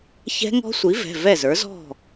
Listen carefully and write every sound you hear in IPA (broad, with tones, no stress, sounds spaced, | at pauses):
ç ɛ̤˦˥ ŋ ɔ̤˦˥ sʷ i˩˥ v ɛ̤˩˧˩ v ɛ˥˩ z ə˞˩˥ z ɔ̤˥˩